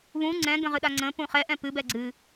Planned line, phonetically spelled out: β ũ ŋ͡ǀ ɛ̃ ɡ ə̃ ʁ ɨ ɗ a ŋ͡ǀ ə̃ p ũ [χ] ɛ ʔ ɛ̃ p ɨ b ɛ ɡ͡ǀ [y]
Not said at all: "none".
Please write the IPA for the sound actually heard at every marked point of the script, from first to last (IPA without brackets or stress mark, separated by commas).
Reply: χ, ɨ